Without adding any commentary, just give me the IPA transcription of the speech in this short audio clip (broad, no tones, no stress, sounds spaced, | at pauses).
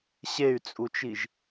ɕ e y̯ t͡sʼ u t͡ʃ i ʒ